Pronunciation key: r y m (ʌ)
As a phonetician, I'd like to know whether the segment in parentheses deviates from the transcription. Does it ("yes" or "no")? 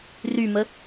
yes